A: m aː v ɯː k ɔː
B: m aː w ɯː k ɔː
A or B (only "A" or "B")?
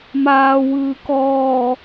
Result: B